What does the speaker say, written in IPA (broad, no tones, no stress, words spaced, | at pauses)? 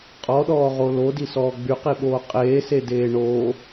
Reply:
qʼɔɗɔːʁo lodisɔː ɡ͡byqiɓoː qʼeːsedeː ɳo